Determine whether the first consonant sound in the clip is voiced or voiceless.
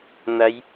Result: voiced